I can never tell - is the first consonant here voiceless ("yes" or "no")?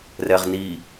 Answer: no